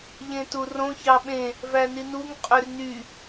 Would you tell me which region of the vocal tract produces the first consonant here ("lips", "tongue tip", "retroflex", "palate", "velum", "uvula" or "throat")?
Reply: palate